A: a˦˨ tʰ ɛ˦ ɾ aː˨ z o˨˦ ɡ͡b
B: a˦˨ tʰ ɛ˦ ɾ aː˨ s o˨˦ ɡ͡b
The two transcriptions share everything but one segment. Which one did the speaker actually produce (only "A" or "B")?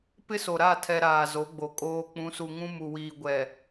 A